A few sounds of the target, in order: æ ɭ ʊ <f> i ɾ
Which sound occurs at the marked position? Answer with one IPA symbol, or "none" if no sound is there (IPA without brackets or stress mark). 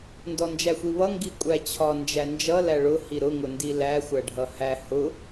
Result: h